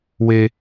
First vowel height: mid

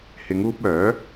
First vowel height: high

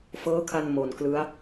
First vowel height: mid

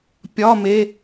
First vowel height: low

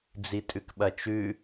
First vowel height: high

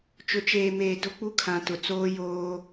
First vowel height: high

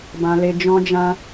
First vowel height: low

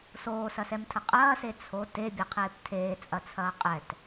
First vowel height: mid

